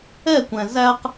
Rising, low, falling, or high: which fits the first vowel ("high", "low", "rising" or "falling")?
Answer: falling